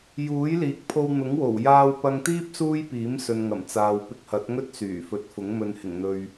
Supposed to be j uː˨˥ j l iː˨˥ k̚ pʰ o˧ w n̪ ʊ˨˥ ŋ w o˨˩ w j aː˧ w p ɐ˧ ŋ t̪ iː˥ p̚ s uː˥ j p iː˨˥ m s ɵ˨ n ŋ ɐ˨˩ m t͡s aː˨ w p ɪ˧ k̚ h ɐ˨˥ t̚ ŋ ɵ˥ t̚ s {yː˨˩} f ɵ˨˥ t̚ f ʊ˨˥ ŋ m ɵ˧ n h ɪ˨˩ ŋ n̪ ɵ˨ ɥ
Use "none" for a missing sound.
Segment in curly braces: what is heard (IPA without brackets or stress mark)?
yː˨˩